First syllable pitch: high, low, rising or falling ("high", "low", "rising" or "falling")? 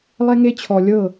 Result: high